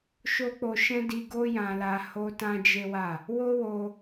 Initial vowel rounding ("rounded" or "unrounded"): rounded